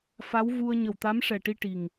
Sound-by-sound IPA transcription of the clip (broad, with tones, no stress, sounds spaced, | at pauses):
f a˧˥ w v u˧ ə̯ ɲ ə˨˩ w t̪ a˧˥ m ʂ ɛ˨˩ ʈ i˧ ʈ i˨˩ ŋ